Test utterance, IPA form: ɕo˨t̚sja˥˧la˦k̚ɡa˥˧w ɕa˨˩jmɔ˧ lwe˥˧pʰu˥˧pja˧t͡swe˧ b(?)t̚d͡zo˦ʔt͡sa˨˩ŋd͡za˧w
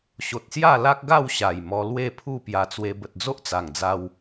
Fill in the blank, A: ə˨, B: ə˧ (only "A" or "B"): A